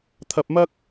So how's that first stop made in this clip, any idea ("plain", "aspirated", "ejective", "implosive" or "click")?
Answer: aspirated